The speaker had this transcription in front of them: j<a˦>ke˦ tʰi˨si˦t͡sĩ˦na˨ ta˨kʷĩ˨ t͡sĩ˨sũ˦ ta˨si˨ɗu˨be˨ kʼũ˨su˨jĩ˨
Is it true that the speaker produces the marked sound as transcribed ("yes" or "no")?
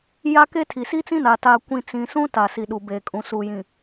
yes